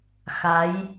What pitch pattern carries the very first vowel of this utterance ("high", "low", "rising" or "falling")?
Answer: rising